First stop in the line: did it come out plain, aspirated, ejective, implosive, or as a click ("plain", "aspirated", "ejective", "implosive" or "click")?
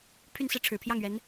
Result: aspirated